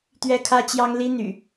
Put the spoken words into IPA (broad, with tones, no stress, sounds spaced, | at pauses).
t̪ ɥ ɛ˦ kʰ ä˦ t͡ɕ j ɑ˦ ŋ l i˦ n̪ y̰˨˩